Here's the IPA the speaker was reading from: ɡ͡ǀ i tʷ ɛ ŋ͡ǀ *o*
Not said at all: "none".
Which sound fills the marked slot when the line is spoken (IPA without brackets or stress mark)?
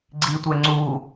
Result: u